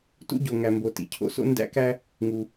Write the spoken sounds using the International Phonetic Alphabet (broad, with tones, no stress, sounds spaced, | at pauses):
t ṵ˥ ɟ o˩ ŋ æ˩ m b o˩ t ḭ˩ cʰ o̰˥ s o̰˥ n d æ̰˥ k æ˥ | ŋ u˩